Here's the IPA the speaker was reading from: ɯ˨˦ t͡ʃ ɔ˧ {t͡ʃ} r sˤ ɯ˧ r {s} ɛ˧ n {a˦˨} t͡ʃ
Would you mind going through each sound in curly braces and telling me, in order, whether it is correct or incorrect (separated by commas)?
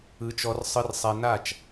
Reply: incorrect, incorrect, correct